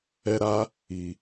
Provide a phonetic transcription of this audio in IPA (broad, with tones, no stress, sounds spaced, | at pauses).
ɛ˦ ɾ a˦ | i˨